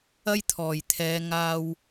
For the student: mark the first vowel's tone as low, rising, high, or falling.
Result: high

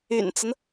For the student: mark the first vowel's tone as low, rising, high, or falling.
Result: low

